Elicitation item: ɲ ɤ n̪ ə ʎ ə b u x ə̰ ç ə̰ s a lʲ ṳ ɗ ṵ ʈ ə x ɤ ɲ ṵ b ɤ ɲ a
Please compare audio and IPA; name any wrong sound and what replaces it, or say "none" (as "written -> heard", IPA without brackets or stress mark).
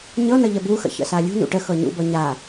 ɗ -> n